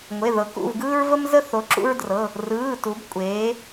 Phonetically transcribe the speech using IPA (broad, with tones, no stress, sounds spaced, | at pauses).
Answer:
ŋʷ e˩˧˩ ð ɤ˩˧ k ṵ˩˧˩ v ɡ ɯː˦ ɹ v ə˦ m z ə˦ θ o˩˧ ǁ ṵ˦ ɹ d r ɤ˩˧˩ | r ɯː˩˧˩ t u˩˧ b kʷʼ eː˩˧